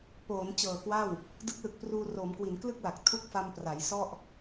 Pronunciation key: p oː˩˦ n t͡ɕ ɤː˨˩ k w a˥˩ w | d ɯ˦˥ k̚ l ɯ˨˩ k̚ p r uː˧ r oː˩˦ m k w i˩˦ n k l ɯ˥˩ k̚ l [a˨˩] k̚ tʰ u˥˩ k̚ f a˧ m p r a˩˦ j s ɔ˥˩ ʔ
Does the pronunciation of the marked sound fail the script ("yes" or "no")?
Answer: no